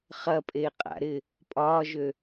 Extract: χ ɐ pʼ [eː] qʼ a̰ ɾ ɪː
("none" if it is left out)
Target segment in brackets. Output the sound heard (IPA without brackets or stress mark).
eː